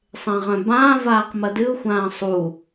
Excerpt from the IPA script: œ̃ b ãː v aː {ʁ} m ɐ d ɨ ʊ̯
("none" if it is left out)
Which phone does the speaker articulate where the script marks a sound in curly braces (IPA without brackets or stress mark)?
q